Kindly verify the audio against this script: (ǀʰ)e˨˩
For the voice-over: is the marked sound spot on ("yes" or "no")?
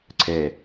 yes